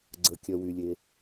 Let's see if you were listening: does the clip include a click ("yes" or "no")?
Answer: yes